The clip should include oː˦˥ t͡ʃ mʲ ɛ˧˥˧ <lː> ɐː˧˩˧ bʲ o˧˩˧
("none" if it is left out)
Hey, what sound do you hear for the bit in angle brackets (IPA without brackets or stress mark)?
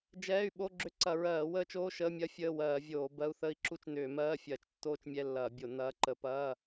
lː